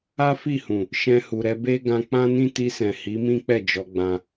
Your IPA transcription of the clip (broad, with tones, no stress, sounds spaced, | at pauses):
a˦ f i˦˨ h ũ˨ | ʃ ɛ̃˧ h u˨ ɾ ɛ˧ b e˦ ɡ ã˧ k͡p ã˦ n ĩ˦ t i˧ s ɛ̃˨ h i˨˦ m ĩ˦ k͡p ɛ˦˨ d͡ʒ ɔ˧ ɡ͡b ã˧